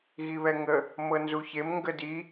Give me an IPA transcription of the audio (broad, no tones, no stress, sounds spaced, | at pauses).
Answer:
ɣ i β ɛ ŋ ə | m ɤ n z u ç e m ŋ ɡ ə d i